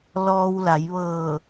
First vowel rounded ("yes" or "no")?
yes